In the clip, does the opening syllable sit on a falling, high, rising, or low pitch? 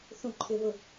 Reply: high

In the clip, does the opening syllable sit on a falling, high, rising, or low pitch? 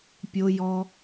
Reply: high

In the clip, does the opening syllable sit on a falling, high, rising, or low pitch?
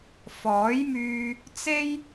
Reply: rising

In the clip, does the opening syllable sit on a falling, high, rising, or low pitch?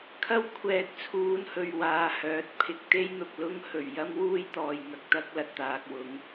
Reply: high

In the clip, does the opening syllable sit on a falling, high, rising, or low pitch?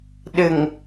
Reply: low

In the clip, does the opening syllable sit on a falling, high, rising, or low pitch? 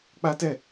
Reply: high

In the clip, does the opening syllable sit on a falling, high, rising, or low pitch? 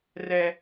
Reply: high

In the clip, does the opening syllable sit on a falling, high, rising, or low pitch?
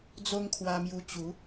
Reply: high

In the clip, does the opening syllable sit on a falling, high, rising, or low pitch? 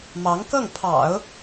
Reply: rising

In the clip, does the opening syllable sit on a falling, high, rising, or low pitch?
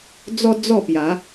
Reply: high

